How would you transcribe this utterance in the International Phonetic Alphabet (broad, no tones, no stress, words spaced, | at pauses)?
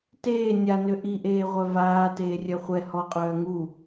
teː nʲanø ʔiʔeːʁʷœ vaː teːrʲœχʷɛ hɔqʼœː ŋu